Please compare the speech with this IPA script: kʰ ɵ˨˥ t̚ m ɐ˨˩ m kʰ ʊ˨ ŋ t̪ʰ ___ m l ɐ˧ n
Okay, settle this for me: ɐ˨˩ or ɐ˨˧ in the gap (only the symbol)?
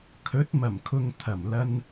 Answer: ɐ˨˩